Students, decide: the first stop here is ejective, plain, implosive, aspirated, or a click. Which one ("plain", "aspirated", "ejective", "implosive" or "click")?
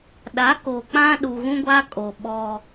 implosive